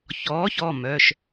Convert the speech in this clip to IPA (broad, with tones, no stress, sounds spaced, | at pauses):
ç ɔː˨˥ ç ɔ˩˧˩ m œ˩˧˩ ʃ